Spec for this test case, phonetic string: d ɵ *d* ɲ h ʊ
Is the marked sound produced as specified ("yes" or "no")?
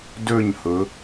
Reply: no